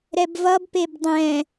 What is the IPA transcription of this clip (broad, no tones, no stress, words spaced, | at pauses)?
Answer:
ɾɛbvʌbpeb dˤɛ̃